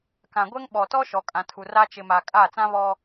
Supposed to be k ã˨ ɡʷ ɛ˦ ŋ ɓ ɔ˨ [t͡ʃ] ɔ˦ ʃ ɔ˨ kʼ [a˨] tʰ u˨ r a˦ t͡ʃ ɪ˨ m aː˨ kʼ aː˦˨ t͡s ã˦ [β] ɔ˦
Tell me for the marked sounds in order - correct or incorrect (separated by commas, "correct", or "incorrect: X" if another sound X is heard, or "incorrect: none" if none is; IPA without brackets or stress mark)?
incorrect: t, incorrect: ã˨, correct